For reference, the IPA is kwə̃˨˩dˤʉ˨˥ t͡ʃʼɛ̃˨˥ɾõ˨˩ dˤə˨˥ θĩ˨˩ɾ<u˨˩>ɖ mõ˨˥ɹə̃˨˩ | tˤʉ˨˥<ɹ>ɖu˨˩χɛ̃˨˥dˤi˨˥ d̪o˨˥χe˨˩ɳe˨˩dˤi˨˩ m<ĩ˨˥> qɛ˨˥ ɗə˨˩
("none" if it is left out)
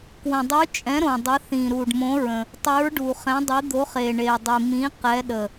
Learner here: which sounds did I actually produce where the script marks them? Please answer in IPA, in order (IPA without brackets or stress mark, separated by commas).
u˨˩, ɹ, ĩ˨˥